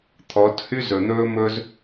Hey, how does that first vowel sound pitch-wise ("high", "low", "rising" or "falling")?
rising